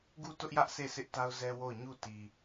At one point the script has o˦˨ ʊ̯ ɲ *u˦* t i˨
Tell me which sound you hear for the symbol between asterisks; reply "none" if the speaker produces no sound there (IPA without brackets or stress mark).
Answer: u˦˨